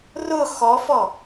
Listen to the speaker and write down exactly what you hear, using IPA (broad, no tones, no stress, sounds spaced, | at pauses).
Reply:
r ʊ x ɔ f ɔ